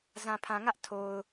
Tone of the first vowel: low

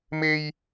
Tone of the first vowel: high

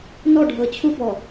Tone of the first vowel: falling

